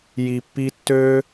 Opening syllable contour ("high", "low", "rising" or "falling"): low